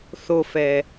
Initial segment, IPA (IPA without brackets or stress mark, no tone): θ